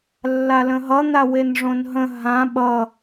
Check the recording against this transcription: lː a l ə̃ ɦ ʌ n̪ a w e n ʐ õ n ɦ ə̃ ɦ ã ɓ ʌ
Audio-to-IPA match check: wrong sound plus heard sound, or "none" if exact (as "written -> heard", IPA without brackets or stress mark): none